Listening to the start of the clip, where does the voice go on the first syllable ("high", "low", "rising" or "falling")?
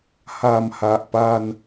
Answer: low